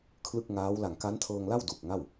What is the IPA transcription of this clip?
kʰ l ɯ˥˩ k̚ ŋ aː˦˥ w l a˨˩ ŋ k a˦˥ n tʰ ɤː˧ ŋ l a˥˩ w d u˨˩ k̚ ŋ a˥˩ w

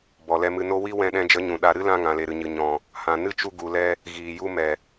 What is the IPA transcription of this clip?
b ɔ˨ l ɛ˧ m ɨ˧ n o˦ w i˦ w ɛ̃˧ ɗ ɛ̃˧ d͡ʒ ə˨˦ ɲ ũ˨ ɗ a˧ ɾ ɨ˦ l ã˧ ŋ ã˨ l e˨ ɾ ɨ˨ ɲ ɨ˨ ɲ ɔ̃˨ | h ã˨ n ɨ˦ t͡ʃ u˧ ɡ u˨ l ɛ˧ | ɣ iː˨ j u˧ m ɛ˨

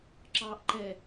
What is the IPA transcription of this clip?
ǁ ɑː ʔ ǃ ɛ

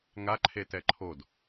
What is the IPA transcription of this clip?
ŋ a ǃʰ e t ɛ ǃʰ o d

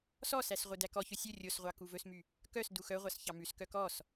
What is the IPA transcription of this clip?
s ɔ s æ s ʁʷ œ d æ k ɔ ç ɵ sʲ ɵ rʲ o s ʁʷ ɑ k u v ɵ s m y | k œ s d u x œ ʁʷ ɑ s ç ɑ m ʉ s k œ k ɔ s

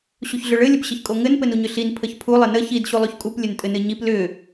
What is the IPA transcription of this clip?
ɕ u ç ɮ ʏ ɭ ɘ lʲ ə p ɕ ɘ ç kʼ o ŋ ɘ n p ɘ n u ɲ ʏ ɬ i n pʰ ə ç pʰ u lˠ ɘ n ə ç i d ɕ u lˠ o ç kʼ u p lʲ ɘ n tʼ ɘ n ɘ ɲ i p l ʏ

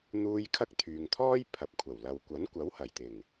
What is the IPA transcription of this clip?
n̪ uː˧ j kʰ ɐ˥ k̚ t̪ʰ yː˨ ŋ t̪ʰ ɔː˥ j pʰ ɐ˨ p̚ kʷʰ ɐ˨˩ w l ɐ˨ w kʷ ɐ˨˥ n kʷ ɐ˨˥ w h ɐ˨˩ j t̪ ɪ˨˩ ŋ

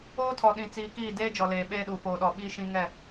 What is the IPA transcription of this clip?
oː˦ tʰ ɔ˨ ɗ ĩ˨ t͡s iː˨ k iː˦˨ d eː˦ d͡ʒ ɔ˨ l eː˨ ɓ eː˦ ɗ u˨ f oː˨ ɗ ɔ˨ ɓ iː˦ ʃ ĩ˦ ŋ ɛ˦˨

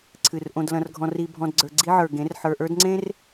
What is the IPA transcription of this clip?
ǀʰ ɨ˨ r ʔ õ˨ d l ɐ̃˨ r ɡʱ ɔ̃˨ r i˨ bʱ ɔ̃˨ d ɡ͡ǀ ə˞˨ ɡ͡ǀ i˦ ʕ ə˞˨ ɡ ẽ˨˦ r ħ ə˞˨ ʔ ə˞˦ d ŋ͡ǀ ẽ˦ r

